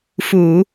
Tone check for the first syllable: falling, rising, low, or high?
low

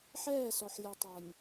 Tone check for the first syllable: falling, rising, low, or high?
falling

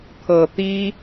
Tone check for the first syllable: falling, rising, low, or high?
low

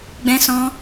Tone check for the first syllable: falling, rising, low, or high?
high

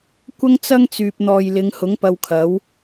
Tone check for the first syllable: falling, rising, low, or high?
high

